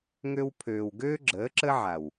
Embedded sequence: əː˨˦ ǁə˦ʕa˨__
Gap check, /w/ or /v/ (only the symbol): w